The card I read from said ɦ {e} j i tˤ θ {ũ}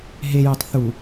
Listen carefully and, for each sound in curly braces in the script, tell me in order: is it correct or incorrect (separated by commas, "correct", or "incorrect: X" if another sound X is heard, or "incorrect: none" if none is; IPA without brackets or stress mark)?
correct, incorrect: u